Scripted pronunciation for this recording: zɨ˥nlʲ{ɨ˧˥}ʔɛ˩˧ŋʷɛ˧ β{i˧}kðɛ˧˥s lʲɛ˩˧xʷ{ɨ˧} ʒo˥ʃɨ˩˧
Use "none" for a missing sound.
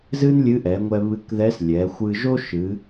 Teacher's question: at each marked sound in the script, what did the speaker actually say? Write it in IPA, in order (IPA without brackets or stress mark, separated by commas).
ɨ˧˥, ɨ˧, ɨ˧